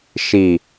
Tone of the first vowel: low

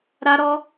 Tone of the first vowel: high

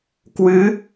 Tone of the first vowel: rising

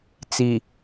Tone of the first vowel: low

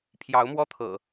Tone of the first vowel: rising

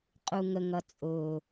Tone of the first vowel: low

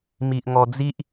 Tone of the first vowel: low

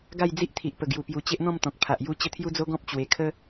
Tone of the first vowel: falling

